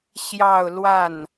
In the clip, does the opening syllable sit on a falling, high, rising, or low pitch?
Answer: falling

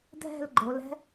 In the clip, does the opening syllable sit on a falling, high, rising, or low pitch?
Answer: falling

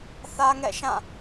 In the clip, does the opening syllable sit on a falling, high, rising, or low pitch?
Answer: high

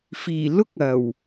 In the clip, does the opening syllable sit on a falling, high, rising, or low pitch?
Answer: low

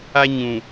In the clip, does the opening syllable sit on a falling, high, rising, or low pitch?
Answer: high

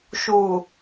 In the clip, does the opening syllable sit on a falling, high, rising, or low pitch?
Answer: low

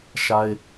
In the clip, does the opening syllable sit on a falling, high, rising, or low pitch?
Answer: high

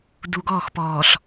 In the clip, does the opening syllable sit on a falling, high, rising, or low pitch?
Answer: low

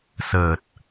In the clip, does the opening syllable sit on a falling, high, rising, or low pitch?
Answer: low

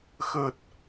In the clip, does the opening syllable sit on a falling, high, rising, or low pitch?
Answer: low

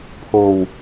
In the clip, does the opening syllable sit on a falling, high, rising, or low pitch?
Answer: low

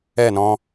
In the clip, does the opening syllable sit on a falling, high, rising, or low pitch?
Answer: falling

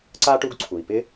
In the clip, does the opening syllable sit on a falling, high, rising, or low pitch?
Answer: high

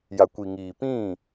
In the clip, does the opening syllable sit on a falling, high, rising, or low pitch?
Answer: low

